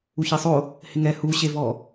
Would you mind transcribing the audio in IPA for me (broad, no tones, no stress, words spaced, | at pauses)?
uçisˤo | hɪŋɛ huɕevɔ